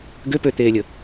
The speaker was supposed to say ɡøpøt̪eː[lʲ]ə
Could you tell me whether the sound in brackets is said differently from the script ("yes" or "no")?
no